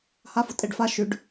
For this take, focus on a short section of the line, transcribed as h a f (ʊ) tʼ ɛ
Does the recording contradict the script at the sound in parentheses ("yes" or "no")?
no